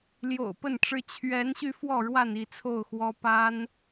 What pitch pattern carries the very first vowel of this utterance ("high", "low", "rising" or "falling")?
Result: low